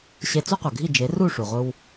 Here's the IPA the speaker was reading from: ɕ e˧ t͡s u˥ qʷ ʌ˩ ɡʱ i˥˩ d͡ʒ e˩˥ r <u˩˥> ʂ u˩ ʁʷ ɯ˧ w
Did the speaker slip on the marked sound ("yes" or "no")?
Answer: yes